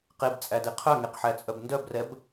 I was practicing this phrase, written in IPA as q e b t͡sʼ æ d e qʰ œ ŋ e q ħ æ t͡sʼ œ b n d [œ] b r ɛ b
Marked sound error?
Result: no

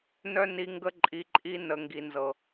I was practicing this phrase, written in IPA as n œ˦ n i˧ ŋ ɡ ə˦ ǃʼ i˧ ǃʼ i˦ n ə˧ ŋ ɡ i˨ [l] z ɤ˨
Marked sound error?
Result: yes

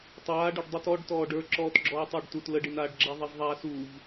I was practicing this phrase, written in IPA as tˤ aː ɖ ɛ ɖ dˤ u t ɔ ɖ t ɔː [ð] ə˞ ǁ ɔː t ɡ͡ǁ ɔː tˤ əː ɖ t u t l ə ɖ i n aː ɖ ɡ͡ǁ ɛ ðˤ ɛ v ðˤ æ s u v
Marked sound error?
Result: yes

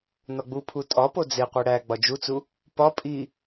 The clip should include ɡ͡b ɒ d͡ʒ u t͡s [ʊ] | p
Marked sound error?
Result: yes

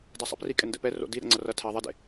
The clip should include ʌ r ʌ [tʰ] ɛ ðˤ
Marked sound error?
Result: no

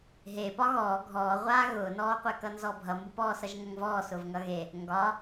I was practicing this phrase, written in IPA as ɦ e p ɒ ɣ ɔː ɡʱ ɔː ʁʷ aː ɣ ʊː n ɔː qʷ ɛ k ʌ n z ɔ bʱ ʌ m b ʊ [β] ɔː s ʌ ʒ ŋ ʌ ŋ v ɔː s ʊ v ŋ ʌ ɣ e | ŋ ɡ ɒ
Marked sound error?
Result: yes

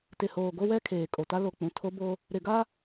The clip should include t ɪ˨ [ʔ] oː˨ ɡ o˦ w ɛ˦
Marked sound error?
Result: yes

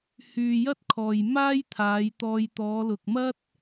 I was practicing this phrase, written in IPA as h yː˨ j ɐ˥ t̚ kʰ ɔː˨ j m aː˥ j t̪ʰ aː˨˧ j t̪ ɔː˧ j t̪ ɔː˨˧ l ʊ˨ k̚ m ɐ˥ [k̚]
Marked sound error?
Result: yes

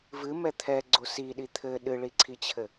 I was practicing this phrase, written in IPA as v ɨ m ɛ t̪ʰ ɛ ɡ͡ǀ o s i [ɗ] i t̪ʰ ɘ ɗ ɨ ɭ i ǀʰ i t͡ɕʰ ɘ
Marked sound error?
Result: no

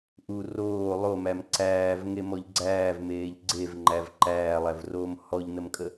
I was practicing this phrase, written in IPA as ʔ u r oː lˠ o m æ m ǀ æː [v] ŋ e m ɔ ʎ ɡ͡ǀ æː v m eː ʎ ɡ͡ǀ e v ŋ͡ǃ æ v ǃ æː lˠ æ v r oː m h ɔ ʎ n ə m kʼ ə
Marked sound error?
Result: no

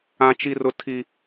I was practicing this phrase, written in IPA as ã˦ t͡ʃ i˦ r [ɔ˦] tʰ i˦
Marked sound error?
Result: yes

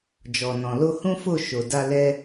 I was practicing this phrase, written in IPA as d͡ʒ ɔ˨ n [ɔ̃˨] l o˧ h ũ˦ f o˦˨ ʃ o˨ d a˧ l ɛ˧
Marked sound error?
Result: no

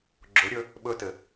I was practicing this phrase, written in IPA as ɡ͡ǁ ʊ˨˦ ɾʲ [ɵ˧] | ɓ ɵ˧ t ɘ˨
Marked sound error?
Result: no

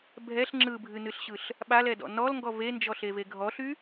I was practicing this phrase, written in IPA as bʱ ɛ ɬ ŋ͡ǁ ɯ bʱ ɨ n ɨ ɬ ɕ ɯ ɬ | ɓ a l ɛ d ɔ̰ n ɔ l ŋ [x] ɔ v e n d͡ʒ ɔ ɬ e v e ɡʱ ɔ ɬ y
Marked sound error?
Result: yes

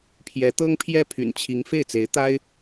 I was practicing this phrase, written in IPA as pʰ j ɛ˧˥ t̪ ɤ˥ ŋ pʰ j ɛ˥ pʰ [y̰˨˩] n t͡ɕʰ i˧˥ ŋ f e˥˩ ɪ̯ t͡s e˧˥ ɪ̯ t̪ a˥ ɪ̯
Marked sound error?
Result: no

